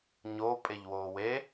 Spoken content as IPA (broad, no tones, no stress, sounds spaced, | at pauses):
ɲ o pʼ e ʎ w oː w e